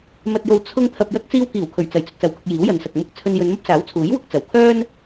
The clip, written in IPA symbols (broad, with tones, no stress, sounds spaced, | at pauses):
m ɐ˨ t̚ j o˨ w t͡sʰ ʊ˥ ŋ t̪ʰ ɐ˨ p̚ j ɐ˧ k̚ t͡s iː˧ w k iː˨˩ w kʰ ɵ˨˩ ɥ t͡s ɐ˨˩ j t͡s ɵ˧ t̚ s ɐ˨ w k ʊ˧ k̚ j iː˨˥ w j ɐ˨˧ n s ɐ˨ k̚ m ʊ˧ k̚ t͡sʰ ɵ˧ n j ɵ˨˧ n m ɐ˥ p̚ s aː˨˥ w t͡sʰ uː˨˥ j w ʊ˧ k̚ t͡s ɐ˨˩ w kʰ œː˥ n